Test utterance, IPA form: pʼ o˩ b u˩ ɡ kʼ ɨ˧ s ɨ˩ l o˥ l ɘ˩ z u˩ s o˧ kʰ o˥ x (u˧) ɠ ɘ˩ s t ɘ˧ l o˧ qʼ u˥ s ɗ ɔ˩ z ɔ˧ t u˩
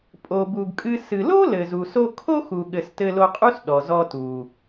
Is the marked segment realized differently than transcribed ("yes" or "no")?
yes